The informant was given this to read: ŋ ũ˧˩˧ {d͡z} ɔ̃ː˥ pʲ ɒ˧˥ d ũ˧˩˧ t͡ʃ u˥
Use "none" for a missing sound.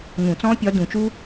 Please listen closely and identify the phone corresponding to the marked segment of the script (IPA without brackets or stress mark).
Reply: t͡s